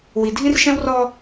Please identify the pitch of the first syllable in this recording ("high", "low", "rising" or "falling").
low